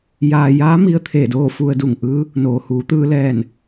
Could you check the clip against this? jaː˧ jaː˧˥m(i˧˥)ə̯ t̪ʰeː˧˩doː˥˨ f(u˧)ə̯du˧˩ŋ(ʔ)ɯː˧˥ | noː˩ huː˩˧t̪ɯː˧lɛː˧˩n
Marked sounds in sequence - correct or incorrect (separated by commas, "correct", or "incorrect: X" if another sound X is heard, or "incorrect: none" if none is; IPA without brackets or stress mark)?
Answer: incorrect: i˧, correct, correct